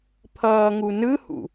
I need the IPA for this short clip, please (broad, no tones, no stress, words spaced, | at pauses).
pʰʌːŋunɯhṵ